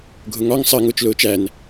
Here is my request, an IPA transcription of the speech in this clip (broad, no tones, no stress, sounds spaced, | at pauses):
ɡʱ ʊ ŋ ɒ ŋ sˤ ɜ ŋ ʊː t͡ʃ l ʊː t͡ʃ æ n